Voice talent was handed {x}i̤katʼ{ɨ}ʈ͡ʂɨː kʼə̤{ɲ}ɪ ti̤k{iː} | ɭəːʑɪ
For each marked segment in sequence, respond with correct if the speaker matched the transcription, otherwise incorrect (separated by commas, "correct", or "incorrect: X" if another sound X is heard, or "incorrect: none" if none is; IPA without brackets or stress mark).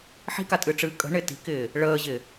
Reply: incorrect: ħ, correct, incorrect: ɳ, incorrect: ɪː